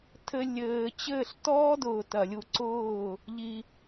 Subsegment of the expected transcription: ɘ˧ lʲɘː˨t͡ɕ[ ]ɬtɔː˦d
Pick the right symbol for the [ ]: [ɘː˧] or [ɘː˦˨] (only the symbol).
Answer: ɘː˦˨